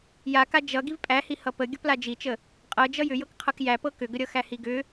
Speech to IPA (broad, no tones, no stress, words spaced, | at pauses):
jaka d͡ʒʌ ɡivpʼæhi hʌpə ɡʲʌplad͡ʒit͡ʃə | qʼɤ d͡ʒʌjʏ jɤkqʰʌkjæ pɤkʏɡəɾʲʌ xæhiɡʏ